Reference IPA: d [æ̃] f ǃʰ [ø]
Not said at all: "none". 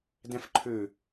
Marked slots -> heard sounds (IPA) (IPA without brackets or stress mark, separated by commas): æ̃, ø